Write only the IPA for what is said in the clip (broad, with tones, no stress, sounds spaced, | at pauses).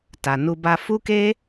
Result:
t a˨ n u˧ b a˧ f u˦ k e˦